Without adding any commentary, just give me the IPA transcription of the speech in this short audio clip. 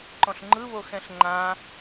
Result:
ǃ ɔ̃ ɬ ŋ͡ǃ ɯ β o x ɛ̃ ɬ ŋ͡ǃ ã

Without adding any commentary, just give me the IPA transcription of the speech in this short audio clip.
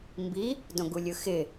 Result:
m b i | d õ ɡ u lʲ ɯ x ɪ

